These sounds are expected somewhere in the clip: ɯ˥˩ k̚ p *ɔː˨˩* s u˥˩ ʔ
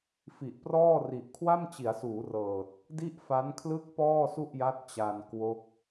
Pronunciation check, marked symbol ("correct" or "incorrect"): incorrect